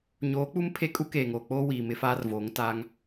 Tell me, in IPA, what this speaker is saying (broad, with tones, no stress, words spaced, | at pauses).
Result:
ɲoː˨˦k͡pu˦m pʰe˦kʼu˦keː˨ŋoː˨ k͡poː˦wiː˨ mɪ˦faː˦rvoː˨˦ŋ taː˦ŋ